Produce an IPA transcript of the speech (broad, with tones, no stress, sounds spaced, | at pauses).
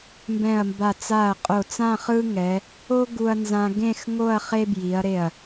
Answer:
m b ɛ̃˧˩ ɐ̯ m b a˧˩ t͡s a˧˩ ɐ̯ qʼ o˧˩ t͡s ã˥˧ χ ɯ˥ ŋ ɛ˩˧ | o˥ ɡ u˧ ɐ̯ n z ã˧ ɡ ẽ˥˧ x ŋ o˥˧ ɐ̯ χ e˥ b j i˩˧ ɐ̯ ɾ e˧˩ ɐ̯